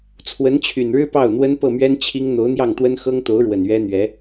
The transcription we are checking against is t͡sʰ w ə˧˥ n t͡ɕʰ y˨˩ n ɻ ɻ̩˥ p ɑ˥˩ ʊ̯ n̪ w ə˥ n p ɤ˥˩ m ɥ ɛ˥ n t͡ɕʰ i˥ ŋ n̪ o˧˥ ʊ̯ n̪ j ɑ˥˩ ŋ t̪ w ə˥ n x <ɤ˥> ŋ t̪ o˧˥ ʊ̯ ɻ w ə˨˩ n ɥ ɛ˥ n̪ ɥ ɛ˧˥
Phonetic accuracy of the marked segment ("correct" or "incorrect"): correct